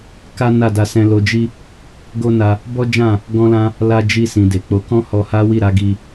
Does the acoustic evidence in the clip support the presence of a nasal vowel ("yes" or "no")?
yes